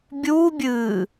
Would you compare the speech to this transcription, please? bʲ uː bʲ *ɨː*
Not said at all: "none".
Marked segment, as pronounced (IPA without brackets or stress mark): ɨː